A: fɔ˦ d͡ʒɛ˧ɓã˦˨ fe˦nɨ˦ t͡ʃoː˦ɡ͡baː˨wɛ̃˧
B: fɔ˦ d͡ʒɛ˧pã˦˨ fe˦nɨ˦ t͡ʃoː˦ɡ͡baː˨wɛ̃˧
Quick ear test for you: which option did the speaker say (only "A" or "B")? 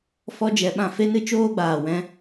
A